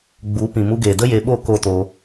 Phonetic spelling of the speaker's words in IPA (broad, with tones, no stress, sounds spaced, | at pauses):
ɡ͡b u˨˦ p ĩ˨ m u˧ ɡ eː˨ d ə˦ j e˧ ɓ o˦˨ k o˦ t o˧